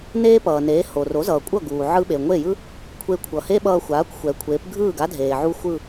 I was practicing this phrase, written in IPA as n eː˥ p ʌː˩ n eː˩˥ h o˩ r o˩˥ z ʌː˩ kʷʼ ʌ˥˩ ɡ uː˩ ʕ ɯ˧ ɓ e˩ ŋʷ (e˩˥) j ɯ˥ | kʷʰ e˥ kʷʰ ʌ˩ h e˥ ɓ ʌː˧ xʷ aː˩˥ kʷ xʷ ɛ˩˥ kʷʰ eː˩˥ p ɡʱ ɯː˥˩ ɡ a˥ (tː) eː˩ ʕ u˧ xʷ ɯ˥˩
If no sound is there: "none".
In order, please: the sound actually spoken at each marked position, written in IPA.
e˥˩, dʱ

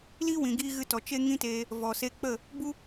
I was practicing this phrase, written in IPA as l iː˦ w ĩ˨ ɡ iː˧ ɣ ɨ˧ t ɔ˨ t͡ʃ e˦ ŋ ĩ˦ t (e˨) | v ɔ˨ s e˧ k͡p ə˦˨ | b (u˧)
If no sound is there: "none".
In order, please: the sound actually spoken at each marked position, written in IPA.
e˧, u˦

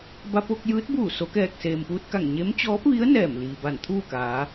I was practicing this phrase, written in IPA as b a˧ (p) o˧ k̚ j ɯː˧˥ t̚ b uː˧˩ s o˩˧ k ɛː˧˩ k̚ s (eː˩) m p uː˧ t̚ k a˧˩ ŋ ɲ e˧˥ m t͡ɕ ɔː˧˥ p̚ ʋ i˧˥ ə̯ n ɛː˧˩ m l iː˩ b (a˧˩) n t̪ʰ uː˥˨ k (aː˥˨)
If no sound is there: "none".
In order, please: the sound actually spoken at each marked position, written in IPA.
p, eː˩, a˧˩, aː˩˧

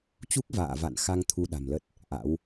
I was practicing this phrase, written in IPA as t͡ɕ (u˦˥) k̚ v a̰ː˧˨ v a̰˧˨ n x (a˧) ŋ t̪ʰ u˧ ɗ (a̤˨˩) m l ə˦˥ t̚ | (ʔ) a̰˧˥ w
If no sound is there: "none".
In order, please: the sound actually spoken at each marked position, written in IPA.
u˦˥, a˧, a̤˨˩, ʔ

